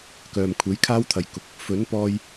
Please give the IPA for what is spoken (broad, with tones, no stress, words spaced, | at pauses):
kœː˨mkʷʰe˨˥j kʰaː˥wt̪ʰɐ˨jkʊ˨˥k̚ | fɵ˨˥npɔː˧j